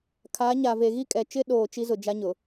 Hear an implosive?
yes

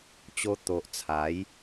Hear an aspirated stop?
yes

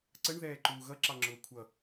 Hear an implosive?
no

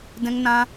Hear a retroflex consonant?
no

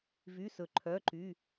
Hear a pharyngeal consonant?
no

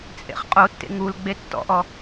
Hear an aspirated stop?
no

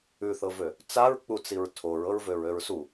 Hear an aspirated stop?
yes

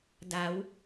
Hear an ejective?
no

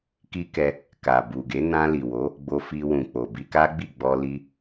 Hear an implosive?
no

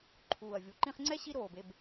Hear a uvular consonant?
yes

